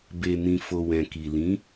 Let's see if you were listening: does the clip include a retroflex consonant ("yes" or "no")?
no